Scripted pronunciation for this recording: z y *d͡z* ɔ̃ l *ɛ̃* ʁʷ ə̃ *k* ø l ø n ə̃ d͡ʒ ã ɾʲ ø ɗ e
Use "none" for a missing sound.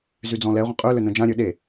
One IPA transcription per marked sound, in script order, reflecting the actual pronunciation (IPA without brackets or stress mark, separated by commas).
d͡z, ɛ, qʼ